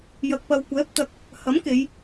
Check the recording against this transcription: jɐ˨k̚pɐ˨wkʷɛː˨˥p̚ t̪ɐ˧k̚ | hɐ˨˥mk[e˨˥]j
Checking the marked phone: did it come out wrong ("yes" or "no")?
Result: yes